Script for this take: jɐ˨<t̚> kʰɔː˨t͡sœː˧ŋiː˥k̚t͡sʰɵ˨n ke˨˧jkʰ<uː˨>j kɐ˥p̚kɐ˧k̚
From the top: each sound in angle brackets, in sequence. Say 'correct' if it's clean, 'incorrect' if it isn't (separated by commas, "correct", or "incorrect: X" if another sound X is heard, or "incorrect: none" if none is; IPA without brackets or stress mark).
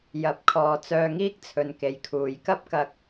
incorrect: p̚, incorrect: uː˨˧